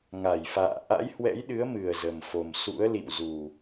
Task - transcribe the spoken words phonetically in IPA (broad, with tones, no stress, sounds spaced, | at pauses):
ŋ a˧˩ j f a̰ː˧˨ ʔ a̰˧˥ j h w ɛ̰˧˥ j ɗ ɨ˨˦ ə̯ m ɨ˨˩ ə̯ z ə˨˩ m f o˨˩ m s ṵ˧˥ ə̯ l ḭ˧˨ w z u˨˩